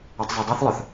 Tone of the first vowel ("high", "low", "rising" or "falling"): low